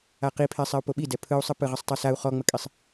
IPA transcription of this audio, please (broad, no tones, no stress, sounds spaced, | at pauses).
a q i pʰ ɛ sˤ ɛ u̯ p o ɓ i d ɛ pʰ ɯ u̯ sˤ ɯ p ɯ ʁ ə sˤ tˤ ɯ s a u̯ χ ɔ ŋ͡m ə kʼ i sˤ